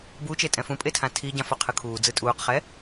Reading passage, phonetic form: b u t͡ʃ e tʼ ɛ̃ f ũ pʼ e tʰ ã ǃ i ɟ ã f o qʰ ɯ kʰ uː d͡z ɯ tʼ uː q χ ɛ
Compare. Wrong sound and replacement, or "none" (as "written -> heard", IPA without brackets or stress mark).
ǃ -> tʰ